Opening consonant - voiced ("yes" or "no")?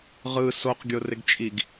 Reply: yes